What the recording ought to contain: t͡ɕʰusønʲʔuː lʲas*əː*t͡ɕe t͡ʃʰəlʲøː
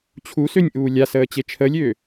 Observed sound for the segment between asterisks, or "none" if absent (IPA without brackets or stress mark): əː